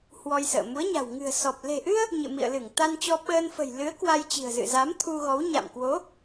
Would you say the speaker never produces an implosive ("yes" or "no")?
no